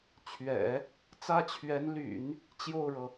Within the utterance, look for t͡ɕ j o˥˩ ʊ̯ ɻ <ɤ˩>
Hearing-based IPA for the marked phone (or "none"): ɤ˩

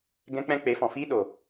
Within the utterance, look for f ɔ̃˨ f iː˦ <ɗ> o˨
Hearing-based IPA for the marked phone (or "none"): ɗ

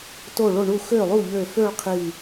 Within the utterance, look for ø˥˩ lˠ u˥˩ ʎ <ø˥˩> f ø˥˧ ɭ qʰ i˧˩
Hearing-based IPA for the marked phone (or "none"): ø˧˩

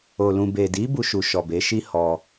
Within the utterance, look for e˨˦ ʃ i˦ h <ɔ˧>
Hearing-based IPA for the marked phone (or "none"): ɔ˧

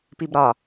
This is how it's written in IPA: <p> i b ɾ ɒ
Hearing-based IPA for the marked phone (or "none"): p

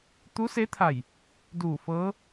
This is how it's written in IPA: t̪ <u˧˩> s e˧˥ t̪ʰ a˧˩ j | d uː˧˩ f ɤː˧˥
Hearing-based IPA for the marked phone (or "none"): u˧˥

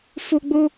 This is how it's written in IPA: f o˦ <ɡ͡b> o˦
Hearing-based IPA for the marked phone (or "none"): ɡ͡b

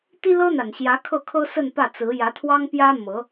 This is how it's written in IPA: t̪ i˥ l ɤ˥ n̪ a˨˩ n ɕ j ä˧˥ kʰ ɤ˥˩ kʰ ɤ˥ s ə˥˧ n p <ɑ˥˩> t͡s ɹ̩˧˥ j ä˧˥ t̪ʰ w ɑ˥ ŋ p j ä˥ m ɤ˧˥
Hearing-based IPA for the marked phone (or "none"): ä˥˩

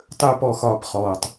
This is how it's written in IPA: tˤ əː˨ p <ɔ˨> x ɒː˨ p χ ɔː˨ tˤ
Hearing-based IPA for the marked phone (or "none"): ɔ˨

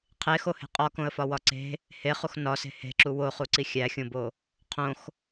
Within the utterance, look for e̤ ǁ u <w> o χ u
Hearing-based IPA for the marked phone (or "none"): w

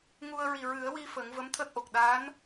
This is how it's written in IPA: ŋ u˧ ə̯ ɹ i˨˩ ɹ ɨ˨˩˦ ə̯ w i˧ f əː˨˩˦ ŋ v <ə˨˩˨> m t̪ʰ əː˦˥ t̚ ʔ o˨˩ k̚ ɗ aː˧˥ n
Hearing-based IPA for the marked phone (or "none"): ə˧˥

